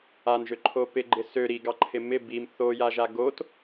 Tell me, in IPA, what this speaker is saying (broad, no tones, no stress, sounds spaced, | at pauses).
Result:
a n ʒ ø ǃʰ o p ɪ ɡ͡ǃ ɪ s ø ɾ i ɡ ɑ ǃʰ ɪ m ɪ b i m θ o j a ʒ a ɡ o t